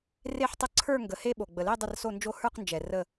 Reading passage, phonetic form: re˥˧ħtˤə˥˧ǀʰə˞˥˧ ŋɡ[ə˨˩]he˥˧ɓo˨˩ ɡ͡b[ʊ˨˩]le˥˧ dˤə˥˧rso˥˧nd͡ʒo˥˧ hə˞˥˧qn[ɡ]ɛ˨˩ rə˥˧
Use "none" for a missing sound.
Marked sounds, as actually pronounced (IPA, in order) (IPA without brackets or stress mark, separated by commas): ə˨˩, ə˨˩, d͡ʒ